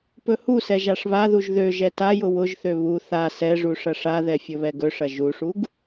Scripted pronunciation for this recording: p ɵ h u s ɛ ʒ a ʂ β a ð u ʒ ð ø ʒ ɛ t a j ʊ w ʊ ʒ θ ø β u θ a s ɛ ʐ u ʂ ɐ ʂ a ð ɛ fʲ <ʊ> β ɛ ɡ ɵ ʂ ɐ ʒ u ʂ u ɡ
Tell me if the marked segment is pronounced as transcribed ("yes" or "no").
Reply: no